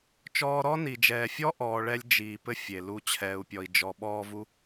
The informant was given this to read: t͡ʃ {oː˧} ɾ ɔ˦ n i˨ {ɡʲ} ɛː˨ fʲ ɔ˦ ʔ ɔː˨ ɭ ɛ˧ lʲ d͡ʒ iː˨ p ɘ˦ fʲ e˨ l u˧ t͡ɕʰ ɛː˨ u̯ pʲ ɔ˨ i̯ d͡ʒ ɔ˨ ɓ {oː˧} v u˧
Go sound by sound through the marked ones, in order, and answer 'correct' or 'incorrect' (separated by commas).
incorrect, incorrect, incorrect